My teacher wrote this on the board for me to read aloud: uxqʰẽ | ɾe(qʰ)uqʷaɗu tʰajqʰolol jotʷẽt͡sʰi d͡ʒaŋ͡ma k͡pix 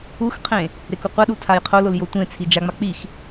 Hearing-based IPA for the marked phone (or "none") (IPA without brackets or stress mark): k